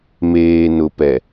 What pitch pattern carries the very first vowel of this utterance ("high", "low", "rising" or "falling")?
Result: low